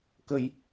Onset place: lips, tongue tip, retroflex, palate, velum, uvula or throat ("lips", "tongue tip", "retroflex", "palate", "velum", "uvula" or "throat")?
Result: velum